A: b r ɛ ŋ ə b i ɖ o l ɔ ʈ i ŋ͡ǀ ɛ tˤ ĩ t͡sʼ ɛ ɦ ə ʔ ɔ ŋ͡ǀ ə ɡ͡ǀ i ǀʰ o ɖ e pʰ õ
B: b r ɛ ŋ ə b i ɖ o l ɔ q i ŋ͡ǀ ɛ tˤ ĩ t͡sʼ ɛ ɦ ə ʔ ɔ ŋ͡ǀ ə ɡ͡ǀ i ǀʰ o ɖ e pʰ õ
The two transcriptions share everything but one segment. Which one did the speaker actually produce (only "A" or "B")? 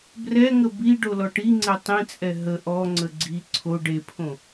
A